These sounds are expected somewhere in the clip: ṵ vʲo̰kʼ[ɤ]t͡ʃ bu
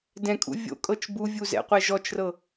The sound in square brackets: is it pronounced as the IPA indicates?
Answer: yes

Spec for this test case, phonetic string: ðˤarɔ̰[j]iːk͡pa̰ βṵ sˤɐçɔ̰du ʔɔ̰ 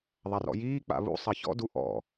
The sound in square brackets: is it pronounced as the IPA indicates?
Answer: yes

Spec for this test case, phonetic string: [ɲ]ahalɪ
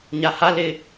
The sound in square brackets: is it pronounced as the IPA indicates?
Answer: yes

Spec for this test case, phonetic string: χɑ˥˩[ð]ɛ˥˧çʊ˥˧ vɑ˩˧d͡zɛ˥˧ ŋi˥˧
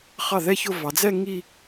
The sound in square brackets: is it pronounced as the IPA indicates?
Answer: yes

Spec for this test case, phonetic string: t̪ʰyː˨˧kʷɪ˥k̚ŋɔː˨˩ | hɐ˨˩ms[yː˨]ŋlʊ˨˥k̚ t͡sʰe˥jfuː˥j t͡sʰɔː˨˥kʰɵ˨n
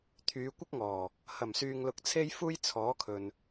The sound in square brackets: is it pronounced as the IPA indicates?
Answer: yes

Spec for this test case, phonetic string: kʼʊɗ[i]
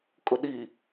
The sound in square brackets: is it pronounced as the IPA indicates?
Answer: yes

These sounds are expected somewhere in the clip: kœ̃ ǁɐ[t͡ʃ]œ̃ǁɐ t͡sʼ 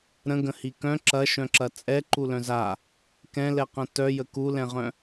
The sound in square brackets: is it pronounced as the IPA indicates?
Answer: no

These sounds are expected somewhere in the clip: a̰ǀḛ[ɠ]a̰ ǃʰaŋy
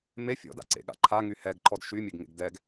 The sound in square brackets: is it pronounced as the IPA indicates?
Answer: yes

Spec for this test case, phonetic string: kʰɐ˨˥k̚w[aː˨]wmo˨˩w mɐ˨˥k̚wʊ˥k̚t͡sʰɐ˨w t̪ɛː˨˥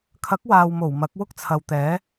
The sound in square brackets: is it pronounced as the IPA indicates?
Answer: yes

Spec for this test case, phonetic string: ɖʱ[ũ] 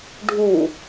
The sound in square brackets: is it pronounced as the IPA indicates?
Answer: no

